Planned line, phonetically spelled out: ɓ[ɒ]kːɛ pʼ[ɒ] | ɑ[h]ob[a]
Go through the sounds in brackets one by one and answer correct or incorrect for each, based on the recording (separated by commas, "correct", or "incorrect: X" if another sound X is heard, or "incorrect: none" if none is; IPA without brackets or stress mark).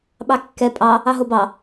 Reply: incorrect: ɑ, incorrect: ɑ, incorrect: ɦ, incorrect: ɑ